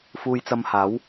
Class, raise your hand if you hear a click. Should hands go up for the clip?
no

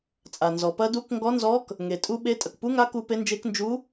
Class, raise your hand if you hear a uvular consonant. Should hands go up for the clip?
no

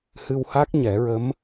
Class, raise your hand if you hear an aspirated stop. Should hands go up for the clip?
no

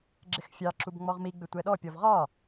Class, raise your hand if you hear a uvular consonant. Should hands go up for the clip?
yes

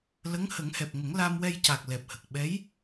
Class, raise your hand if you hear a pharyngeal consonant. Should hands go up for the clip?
no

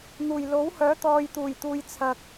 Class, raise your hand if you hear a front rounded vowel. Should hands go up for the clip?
yes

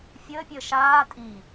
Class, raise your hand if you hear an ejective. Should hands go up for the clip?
yes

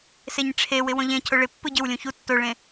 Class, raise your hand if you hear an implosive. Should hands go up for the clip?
no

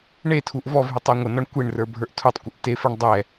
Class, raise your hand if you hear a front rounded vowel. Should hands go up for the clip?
yes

